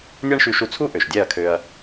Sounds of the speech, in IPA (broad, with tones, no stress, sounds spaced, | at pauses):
nʲ a˦ ɳ ʃ y˧ ʃ u˧ t͡sʰ u˦ ʔ ø˨ ʃ dʲ ɛ˦˨ ɐ̯ kʰ ø˧ ɐ̯